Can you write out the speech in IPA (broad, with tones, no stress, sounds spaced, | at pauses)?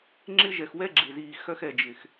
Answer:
ŋ͡ǁ ɪ˦ ʒ ɛ˨ x w ɛ˦ ɡ͡ǁ ɪ˨ z iː˨ x œ˦ x ɛ˨ d͡ʒ ɪ˨ x